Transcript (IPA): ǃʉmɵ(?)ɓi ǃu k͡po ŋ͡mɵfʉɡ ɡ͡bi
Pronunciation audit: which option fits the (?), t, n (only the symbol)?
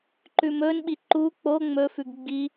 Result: n